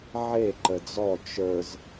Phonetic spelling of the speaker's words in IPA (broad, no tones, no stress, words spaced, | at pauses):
ʕe ǃəd͡zɔ t͡ʃə˞z